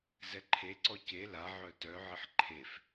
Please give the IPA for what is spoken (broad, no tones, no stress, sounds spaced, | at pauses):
z ɛ ǃʰ e ǀ ɔ c e l a ʕ œ t œ ʕ ɘ ħ ǃʰ e f